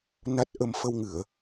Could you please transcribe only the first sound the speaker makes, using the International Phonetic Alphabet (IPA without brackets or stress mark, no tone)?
n